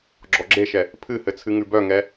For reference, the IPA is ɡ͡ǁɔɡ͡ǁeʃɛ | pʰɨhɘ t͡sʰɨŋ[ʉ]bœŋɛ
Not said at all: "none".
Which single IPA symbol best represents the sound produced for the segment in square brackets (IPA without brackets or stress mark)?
ʉ